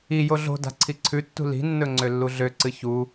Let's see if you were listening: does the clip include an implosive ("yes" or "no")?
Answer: no